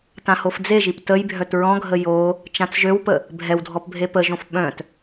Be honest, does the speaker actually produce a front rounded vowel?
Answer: yes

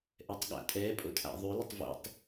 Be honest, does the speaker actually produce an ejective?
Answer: yes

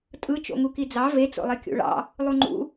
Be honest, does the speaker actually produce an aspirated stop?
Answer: no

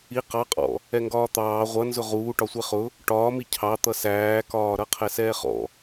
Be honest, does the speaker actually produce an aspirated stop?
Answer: yes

